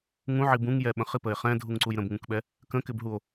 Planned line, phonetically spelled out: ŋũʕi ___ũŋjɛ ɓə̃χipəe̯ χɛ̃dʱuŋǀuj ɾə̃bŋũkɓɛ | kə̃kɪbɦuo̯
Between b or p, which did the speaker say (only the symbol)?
b